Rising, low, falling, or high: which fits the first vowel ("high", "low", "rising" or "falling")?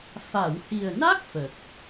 low